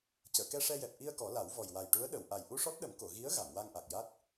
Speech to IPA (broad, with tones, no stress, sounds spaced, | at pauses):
c əː˨˩˨ k ɛ˧ ʂ ɛ˧ j ɛ˨˩ p̚ ʔ i˧ ə̯ k ɔ˨˩˦ l a˨˩˦ w v ɔ˨˩ j w a˨˩ j ʈ u˧˥ ə̯ ɗ ə˨˩˨ w ʔ a˨˩ j ʔ u˧ ʂ ɔ˦˥ t̚ ɗ ə˨˩˦ m k o˨˩˨ ɣ i˧˥ ə̯ ɣ a˨˩˨ m w a˧ ŋ ʔ a˨˩ k̚ j a˦˥ t̚